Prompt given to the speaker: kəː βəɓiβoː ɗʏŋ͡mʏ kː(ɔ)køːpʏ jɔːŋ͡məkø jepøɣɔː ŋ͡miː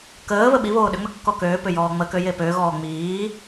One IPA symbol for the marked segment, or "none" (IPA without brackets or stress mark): ɔ